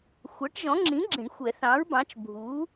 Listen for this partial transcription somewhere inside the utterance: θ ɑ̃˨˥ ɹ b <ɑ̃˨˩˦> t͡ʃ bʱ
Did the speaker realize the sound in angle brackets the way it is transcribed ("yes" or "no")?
no